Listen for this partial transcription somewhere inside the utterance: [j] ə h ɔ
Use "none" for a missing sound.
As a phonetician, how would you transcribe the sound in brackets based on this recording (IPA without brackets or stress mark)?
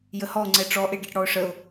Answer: j